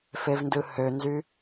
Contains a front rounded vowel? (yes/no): yes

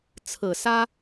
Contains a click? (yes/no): no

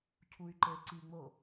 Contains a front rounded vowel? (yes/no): yes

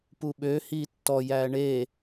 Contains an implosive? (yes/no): yes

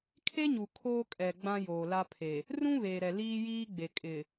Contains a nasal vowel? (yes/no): yes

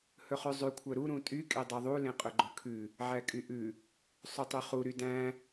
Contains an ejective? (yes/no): yes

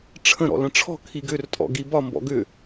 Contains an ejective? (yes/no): yes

